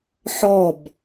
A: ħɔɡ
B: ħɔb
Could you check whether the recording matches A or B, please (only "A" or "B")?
B